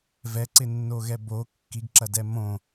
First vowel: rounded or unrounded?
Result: unrounded